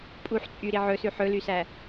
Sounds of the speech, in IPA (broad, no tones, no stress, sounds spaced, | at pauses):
pʼ u ħ t͡sʼ y ɾ i ʕ ɵ s ʉ ħ ɵ l y s æ